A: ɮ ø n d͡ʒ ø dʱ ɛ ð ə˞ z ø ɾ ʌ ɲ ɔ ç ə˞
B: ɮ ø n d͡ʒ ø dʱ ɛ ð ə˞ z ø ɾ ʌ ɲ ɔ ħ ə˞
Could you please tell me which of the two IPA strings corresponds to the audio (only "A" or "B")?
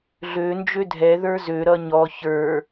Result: A